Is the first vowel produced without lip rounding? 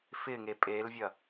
yes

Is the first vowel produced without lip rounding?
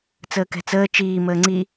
yes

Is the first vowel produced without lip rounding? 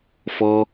no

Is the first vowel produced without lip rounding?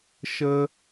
yes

